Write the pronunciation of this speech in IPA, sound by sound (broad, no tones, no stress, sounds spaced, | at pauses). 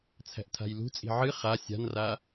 t͡sʰ æ̤ ʔ tʰ a̤ j l ṳ t͡sʼ i̤ ʕ ɨ χ a sʲ a̤ n r a